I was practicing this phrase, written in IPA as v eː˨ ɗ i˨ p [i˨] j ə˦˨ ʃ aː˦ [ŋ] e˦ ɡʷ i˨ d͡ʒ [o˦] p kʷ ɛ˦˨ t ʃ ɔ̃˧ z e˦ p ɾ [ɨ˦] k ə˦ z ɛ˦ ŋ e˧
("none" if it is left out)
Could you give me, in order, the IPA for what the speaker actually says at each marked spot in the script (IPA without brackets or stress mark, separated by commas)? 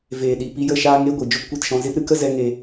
i˧, ŋ, o˦, ɨ˦